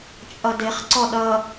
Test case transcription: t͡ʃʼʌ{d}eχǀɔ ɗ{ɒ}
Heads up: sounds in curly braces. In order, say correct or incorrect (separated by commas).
correct, incorrect